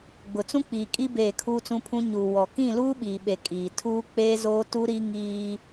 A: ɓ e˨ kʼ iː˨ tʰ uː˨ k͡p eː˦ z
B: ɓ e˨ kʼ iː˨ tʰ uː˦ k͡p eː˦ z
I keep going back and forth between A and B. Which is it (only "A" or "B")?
B